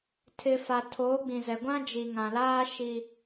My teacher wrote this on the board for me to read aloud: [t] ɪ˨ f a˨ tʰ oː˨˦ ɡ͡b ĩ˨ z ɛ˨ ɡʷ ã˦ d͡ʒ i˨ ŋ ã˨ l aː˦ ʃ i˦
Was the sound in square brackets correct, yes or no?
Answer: no